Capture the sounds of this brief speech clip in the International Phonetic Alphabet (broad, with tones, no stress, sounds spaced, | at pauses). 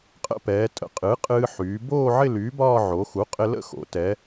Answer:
qʼ ə̰˥˧ p ɛː˩˧ tʼ ə̰˩˧ qʼ ɨ˩˥ qʼ ɨː˧ ħ yː˩˧ b oː˥˧ ʕ ɪ˥˧ l yː˩˥ b ɒː˥˧ ʕ o˩˧ x u˩˥ qʼ ɪ˧ l ə̰˥˧ x o̰˩˧ t ɛː˩˧